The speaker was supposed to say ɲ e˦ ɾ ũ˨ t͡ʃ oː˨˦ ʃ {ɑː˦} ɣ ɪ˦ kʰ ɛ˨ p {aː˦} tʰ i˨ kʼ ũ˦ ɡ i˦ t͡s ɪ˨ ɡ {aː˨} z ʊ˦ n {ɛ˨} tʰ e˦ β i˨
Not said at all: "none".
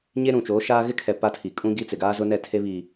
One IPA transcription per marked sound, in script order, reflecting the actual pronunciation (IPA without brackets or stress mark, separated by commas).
aː˦, a˦, aː˦, ɛ˦˨